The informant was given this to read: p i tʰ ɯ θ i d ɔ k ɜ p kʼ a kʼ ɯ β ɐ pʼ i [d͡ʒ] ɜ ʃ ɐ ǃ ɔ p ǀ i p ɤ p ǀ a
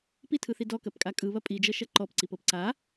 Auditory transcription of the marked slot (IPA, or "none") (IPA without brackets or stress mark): d͡ʒ